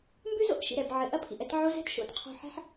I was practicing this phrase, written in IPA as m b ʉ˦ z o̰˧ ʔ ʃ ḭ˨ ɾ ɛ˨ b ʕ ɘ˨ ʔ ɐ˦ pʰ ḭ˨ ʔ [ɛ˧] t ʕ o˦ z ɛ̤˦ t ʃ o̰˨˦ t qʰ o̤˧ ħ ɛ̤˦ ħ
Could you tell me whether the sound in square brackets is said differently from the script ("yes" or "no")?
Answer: no